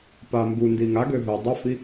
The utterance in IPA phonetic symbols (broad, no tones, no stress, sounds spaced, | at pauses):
p a m b u n d i ŋ a ɡ ø ɦ ø dˤ œ f i